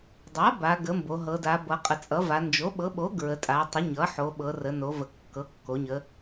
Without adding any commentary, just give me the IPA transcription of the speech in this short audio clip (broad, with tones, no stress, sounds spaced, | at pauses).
dˤ a˩˥ b a˩˧ ɡ ə˩˥ m b o˩˧ ɦ ɤ˩˧ d a˩˧ b ʌ˩˧ qʼ ə˩˧ t͡sʼ ʌ˩˥ v a˩˧ n d͡ʒ o˩˥ ɓ ɤ˩˥ ɓ o˩˥ ɡ ɹ ə˩˧ tʼ a˩˧ tˤ ə˩˥ ɲ ʌ˩˥ ħ o˩˧ ɓ ɤ˩˧ r ə˩˧ n o˩˧ v ə˩˧ kː ɤ˩˥ kː o˩˧ ɲ ə˩˧